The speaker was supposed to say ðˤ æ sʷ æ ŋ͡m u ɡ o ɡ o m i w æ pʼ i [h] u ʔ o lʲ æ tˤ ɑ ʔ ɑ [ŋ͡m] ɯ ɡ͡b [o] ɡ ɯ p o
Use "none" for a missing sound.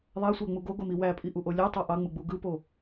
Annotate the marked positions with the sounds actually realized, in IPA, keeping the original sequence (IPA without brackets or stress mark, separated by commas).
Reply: ʔ, ŋ͡m, u